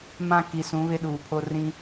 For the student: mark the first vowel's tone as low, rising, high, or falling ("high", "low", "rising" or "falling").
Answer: high